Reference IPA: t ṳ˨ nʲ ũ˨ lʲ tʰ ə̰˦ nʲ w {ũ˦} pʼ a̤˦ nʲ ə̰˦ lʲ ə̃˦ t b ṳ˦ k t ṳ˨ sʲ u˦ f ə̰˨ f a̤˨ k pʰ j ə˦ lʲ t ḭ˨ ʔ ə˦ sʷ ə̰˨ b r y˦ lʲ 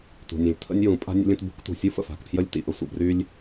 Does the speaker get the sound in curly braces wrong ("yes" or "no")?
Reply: yes